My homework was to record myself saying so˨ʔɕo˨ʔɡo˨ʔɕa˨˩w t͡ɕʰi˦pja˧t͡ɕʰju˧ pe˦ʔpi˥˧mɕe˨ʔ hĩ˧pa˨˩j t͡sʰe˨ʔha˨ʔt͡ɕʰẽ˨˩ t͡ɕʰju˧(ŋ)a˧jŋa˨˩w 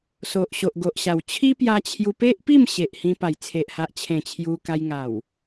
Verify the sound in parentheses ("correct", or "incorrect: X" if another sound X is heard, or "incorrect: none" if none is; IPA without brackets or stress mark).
incorrect: k